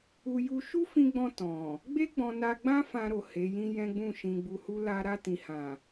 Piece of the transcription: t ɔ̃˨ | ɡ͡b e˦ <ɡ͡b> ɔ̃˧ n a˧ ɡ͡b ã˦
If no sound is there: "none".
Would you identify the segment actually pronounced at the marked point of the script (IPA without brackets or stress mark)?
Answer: ɡ͡b